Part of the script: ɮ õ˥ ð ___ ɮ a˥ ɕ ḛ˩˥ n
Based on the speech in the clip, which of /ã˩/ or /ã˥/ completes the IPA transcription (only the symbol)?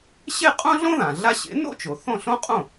ã˩